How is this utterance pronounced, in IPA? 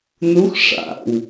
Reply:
n u x ʂ a̰ w

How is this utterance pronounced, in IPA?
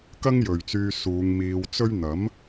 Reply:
k ɐ˥ ŋ j ɵ˨ ɥ t͡s yː˧ s uː˨˧ ŋ m iː˧ w t͡s ɵ˥ ɥ n̪ ɐ˨˥ m

